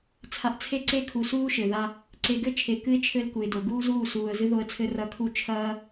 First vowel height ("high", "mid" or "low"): low